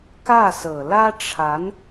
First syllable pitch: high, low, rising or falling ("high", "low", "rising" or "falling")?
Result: falling